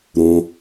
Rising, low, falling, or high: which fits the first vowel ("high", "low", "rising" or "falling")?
low